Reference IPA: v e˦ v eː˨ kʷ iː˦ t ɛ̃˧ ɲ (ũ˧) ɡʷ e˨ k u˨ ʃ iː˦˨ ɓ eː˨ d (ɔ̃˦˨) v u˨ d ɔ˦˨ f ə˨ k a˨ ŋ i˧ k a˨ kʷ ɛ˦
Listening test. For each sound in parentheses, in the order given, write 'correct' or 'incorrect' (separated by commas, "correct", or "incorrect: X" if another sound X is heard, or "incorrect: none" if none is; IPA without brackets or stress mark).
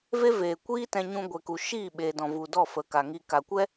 correct, incorrect: ɔ̃˨